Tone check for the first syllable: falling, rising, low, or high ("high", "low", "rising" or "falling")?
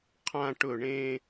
falling